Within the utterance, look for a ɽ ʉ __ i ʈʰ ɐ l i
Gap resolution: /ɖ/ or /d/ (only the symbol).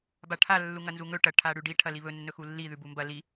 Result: ɖ